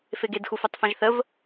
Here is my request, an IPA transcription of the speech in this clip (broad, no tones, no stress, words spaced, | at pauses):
feɡedxu fœtˤfãʒθəv